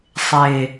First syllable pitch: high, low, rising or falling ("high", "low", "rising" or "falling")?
low